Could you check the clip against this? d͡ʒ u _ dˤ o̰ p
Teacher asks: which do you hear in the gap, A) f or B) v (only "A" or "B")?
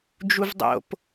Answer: B